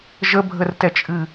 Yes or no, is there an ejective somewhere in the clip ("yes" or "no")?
yes